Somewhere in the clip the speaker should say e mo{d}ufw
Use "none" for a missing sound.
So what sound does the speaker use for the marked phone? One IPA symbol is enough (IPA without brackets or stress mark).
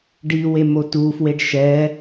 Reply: t